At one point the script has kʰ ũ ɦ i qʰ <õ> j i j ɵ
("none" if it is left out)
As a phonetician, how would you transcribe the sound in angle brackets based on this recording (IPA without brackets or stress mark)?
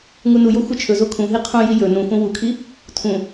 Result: õ